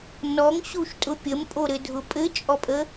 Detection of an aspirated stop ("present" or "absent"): absent